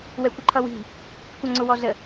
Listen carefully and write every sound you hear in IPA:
w ɛ kʷ ə ǃʰ ʌ w i̤ | kʷ ʌ ŋ͡ǀ ʊ w ɔ z ə

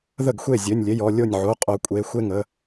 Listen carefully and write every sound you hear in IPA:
ð ə˥˩ ɡ xʷ e˥˩ zʲ ø˩˧˩ nʲ lʲ e˩˧˩ j ɔ˩˧˩ lʲ o˥˩ nʲ ʕ o˩˧˩ qʼ o˩˧ kʷʼ e˩˧˩ xʷ e˥˩ ŋ ə˩˧˩

